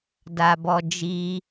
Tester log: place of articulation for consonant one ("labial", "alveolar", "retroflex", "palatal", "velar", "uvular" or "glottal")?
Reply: alveolar